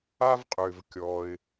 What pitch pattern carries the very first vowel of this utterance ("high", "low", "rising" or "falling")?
high